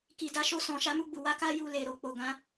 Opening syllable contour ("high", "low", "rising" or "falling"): low